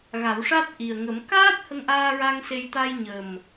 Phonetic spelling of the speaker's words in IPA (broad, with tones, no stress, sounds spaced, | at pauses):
ɣ a˨˩˦ w ʂ a˦˥ t̚ ʔ i˨˩ ə̯ ŋ ə˨˩˦ m k aː˦˥ t̚ h ə˧ ŋ ʔ aː˧ ɹ a˧ ŋ s e˧ j t̪ a˧ j ɲ ə˨˩ m